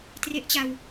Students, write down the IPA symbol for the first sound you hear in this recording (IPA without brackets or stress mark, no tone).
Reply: t